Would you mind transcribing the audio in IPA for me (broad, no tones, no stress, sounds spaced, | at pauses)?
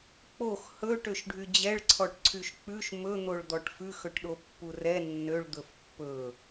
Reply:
k͡p o x h ɵ ʈ ø ʃ ɖʱ y d͡ʑ ɛ ɭ ǀʰ ɔ ʈ ǀʰ y ʃ k͡p ʉ ʃ m ɵ n̪ o ɭ d̪ ɔ ʈ f ʉ x ɵ ʈ ɗ o pː u r ɛ nː ø ɭ d̪ ɵ f pː ɵ